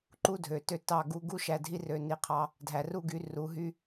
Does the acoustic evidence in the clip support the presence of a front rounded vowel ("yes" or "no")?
yes